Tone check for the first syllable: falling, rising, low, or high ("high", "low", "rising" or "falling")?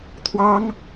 high